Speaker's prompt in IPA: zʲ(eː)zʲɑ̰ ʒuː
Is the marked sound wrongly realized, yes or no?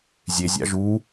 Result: yes